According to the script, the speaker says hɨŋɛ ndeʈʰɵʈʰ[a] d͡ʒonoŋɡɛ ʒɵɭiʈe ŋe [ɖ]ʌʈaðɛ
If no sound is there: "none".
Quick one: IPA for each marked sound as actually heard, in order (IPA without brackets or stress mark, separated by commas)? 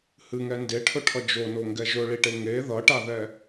ʌ, ð